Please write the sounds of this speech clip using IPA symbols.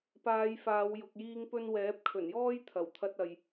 p aː˨˧ j f aː˨˧ w j ʊ˧ k̚ j iː˥ ŋ p ɵ˥ n w ɛː˨˥ p̚ kʰ ɵ˨˩ n j ɔː˥ j t̪ʰ ɐ˨˩ w t̪ʰ ɐ˧ t̚ ɐ˨ j

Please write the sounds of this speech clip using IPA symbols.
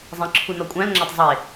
zˤ ĩ ǁʰ u n ɒ kʷʼ æ̃ l ŋ͡ǁ æ tˤ zˤ e

